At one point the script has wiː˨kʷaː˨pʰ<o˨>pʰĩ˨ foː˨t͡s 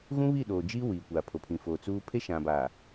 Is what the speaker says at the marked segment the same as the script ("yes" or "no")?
yes